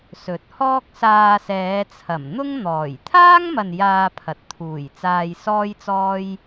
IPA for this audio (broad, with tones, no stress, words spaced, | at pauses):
sɵ˨˥t̚hɔː˥k̚ saː˧sɛː˨˧t͡sʰɐ˨˩m n̪ʊ˥ŋ n̪ɔː˨˩j t̪ʰaː˥ŋmɐ˨n jaː˧pʰɐ˨˥t̚t̪ʰuː˨˩j t͡saː˧jsɔː˥jt͡sɔː˥j